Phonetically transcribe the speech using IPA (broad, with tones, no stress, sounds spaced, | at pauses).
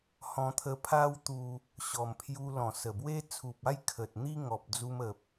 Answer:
h ɔ̃˧ t̪ʰ ə˧ pʰ a˦ w t̪ u˧ | ɕ ɔ˨˩ m pʰ j u˧ l ɔ̃˨˩ s ə˨˩ b w e˦ t͡sʰ u˨ p̚ a˥˧ j kʰ ə˨ t̚ n̪ i˦ ŋ ɔ˨ p̚ d͡z u˧ m ə˨ p̚